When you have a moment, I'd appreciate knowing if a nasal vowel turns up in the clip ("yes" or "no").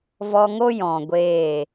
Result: yes